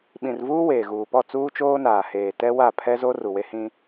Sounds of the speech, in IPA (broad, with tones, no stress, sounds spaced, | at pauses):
ɓ ĩ˨ r v uː˦ w eː˨ ɣ uː˨ p ɔ˦˨ t͡s uː˦ t͡ʃ oː˦ n aː˨ h eː˨ t ɛ˦ w a˦˨ pʰ ɛ˦ z o˦ r u˨ w e˦ h ĩ˦